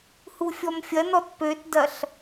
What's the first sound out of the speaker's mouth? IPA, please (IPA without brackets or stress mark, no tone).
h